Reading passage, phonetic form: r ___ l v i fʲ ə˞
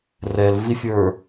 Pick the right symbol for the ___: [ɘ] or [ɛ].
ɛ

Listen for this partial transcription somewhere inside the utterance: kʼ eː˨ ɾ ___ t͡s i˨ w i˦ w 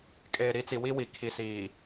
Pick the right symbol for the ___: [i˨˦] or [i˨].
i˨˦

